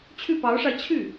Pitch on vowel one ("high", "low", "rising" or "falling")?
falling